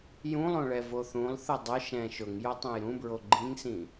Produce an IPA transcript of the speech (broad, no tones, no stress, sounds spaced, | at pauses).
j ũ lˠ õ ɭ ɛ v o θ ũ lˠ θ ʊ dˤ ʊ ʃ ɛ̃ ʃ ʊ ŋ j o tˤ ẽ j ɾ ũ b ɹ o ɡ͡ǃ ĩ ŋ s ĩ